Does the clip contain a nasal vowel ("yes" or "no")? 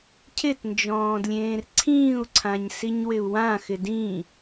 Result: yes